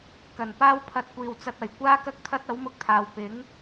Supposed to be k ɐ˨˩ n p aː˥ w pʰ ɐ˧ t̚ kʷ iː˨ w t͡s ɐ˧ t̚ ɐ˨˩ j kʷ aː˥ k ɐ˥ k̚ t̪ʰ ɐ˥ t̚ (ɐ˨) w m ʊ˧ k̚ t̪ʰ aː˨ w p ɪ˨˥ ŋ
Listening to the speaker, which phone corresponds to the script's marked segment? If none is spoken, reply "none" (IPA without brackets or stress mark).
ɐ˨˥